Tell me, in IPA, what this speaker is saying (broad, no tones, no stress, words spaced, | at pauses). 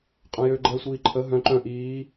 qʼœ̃jø ɡ͡ǃɛːsʷiːǃʰə ɦœ̃ ǃœ̃ ʔiː